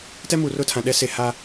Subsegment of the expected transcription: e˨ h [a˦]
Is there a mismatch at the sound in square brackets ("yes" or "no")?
no